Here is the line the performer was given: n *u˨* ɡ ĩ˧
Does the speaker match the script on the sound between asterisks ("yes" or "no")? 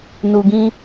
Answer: yes